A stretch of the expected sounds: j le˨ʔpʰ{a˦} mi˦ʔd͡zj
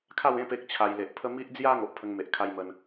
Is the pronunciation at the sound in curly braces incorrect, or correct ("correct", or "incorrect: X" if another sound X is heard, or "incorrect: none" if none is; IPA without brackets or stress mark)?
incorrect: ə˦